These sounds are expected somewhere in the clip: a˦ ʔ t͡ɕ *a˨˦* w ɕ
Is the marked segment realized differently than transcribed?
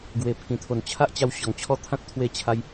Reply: yes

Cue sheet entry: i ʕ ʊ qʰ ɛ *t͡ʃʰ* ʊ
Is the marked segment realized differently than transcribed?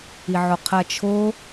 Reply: no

